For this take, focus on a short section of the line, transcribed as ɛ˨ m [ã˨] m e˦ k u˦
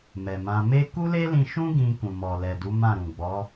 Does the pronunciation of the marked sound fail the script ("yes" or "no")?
yes